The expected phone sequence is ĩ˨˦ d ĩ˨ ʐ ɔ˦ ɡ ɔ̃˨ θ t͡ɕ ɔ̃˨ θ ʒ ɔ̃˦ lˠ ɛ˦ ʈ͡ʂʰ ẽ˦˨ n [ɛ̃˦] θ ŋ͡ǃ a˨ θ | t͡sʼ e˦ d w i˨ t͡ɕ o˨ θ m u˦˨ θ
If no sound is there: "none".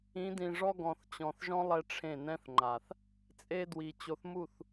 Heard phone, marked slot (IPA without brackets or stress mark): ɛ̃˦